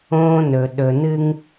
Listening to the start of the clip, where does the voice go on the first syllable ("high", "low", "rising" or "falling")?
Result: high